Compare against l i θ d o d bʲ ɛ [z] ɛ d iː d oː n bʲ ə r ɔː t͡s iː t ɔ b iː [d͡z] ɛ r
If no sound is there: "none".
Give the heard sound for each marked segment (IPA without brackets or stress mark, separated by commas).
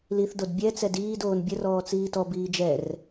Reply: t͡s, d͡ʒ